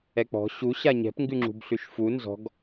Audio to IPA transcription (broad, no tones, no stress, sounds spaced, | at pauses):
ɛ k͡p ɔ̤ ɕ u ɕ a ɲ ɛ̤ p ŋ ɡ ʉ ŋ͡ǁ ṳ b ɬ ʉ ʃ f u n z ɔ̤ ɡ